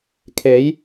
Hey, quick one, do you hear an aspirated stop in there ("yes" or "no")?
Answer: yes